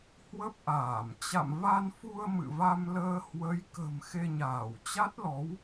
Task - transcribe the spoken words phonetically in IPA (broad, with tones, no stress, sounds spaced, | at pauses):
h w ə˦˥ p̚ ʔ aː˧˩ m t͡ɕ a̰˧˨ m v a˧ n f u˧ ə̯ m ɨ̰˧˨ v a˧ m l əː˧ h w ə˨˦ j k ə̤˨˩ m x e˧ ɲ aː˧˩ w t͡ɕ a˦˥ t̚ l ɔ˨˦ w